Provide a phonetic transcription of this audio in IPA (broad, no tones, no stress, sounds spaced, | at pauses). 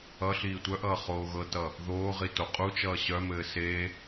ʌ ɬ iː tʷ œ ʔ ʌː χ oː ɣ ɤ t ʌ | ð oː ʁ i t o qʼ u t͡ʃ ʌː ɕ œ m ɘː s e